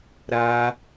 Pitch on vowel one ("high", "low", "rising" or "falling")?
high